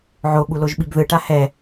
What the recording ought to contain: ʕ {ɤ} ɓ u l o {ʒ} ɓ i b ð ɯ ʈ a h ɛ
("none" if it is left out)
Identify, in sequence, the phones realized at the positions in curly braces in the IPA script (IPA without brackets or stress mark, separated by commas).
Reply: o, ʒ